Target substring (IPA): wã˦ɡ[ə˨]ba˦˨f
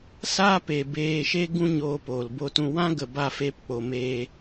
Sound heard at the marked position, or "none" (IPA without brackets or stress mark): ə˨